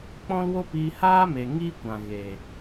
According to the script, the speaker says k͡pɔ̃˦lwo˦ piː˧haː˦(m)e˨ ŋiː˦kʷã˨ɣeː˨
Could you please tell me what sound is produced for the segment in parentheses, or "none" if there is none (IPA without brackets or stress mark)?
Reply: m